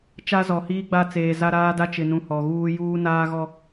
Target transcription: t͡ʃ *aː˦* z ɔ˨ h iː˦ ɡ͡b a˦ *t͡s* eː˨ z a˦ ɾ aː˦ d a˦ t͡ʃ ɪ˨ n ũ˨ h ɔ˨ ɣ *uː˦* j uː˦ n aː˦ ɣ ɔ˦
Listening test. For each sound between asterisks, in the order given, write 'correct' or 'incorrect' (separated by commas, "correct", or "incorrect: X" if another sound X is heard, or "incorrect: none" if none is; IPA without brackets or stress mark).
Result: incorrect: a˦, correct, correct